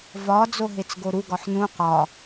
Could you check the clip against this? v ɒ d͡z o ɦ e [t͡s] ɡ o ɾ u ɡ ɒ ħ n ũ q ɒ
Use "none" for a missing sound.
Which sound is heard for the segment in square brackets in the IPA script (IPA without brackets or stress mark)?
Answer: t͡s